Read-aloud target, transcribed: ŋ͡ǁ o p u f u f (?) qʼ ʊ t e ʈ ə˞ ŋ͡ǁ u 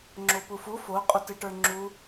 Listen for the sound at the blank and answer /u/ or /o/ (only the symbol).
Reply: o